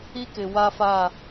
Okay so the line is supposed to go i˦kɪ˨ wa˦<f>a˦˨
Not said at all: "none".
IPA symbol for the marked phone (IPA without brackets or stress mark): f